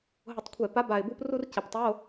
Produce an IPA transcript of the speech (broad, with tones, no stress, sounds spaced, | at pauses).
ɦ ʊ˧˩˧ tˤ kʷʰ ɛ˧˩˧ p a˨˥ b a˨˩ ɪ̯ b u˧ p r u˧ r c ɪ˨˩ p tˤ o˧˥˧